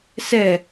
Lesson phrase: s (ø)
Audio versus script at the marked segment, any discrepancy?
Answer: yes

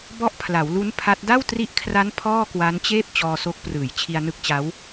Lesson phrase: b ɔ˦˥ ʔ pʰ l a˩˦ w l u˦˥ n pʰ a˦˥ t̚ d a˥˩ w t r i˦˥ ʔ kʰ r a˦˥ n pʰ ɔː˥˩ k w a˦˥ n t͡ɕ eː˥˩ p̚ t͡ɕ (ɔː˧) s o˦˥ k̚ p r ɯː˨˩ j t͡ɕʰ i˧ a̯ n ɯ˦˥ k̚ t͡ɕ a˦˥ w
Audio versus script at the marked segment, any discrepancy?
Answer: no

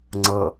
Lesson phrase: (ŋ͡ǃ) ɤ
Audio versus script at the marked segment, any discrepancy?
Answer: yes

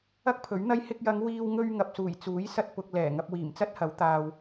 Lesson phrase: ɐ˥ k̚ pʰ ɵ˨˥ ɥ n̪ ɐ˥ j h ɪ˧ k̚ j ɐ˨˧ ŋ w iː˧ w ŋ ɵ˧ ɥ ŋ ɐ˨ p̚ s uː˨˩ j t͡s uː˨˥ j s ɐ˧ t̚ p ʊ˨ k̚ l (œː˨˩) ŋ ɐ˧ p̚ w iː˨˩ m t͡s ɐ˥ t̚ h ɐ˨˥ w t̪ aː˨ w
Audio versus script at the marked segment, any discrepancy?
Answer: yes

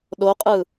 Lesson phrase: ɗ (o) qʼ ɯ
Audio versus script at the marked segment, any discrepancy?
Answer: no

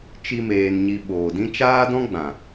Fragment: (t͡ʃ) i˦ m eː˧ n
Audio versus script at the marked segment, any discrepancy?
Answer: no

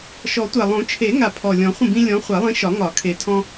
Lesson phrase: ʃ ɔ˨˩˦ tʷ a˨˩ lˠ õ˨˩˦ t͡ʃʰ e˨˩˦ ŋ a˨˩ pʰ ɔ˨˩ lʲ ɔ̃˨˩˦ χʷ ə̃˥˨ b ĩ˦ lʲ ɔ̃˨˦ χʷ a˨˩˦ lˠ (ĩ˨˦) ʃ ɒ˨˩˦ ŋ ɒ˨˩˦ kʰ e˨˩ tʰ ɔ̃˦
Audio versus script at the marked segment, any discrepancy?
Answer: no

